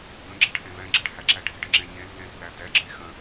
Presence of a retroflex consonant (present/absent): present